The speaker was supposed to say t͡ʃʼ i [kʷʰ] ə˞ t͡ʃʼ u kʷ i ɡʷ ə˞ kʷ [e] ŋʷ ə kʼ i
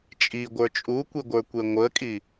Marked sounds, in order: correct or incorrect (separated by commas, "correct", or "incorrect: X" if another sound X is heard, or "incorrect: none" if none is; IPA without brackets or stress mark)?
incorrect: ɡʷ, correct